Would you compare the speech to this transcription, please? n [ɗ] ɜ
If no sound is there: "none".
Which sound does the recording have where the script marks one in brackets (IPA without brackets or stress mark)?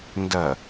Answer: d